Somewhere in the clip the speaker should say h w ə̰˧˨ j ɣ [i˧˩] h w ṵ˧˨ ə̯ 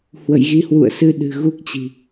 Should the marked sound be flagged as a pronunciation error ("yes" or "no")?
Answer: yes